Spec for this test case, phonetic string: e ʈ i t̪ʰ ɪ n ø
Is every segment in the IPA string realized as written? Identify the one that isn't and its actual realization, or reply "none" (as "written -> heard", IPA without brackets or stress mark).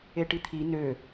ɪ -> i